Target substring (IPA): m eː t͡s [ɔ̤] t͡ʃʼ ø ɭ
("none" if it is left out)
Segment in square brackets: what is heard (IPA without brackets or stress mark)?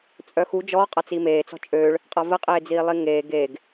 ɔ̤